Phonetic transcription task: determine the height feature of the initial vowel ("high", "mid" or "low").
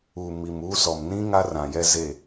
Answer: high